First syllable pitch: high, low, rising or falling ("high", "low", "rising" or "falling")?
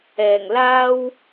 low